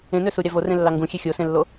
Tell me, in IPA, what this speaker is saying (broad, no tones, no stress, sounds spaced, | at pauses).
ẽ n ø s u ɾʲ ɑ v o r ẽ lː ɑ ŋ ɡ ũ xʲ e xʲ o s ẽ lː o